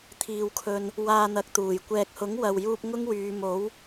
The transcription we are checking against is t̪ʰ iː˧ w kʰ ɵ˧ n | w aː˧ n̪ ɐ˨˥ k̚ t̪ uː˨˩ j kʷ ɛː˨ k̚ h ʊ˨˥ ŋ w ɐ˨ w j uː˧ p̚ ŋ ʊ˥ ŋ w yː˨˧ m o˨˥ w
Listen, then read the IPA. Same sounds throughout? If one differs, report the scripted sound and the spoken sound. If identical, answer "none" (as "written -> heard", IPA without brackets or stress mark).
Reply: none